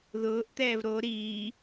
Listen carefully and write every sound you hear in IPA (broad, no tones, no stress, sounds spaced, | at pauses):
ð ʊː ʔ t̪ ɛː v ɾ o ɾ iː